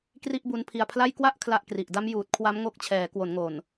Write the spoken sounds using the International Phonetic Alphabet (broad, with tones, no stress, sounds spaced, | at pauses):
k r i˥˩ ʔ b u˦˥ n pʰ i˧ a̯ pʰ l a˥˩ j k w a˥˩ ʔ kʰ l a˥˩ ʔ k r i˨˩ ʔ d a˦˥ m j uː˨˩ t̚ kʰ w a˦˥ m ŋ o˦˥ k̚ t͡ɕʰ ɛː˩˦ k w o˩˦ n ŋ o˨˩ n